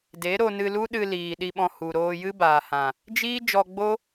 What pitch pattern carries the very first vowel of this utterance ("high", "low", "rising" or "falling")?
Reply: rising